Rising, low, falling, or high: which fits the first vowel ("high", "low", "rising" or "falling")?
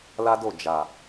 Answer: high